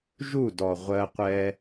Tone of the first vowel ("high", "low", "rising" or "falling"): falling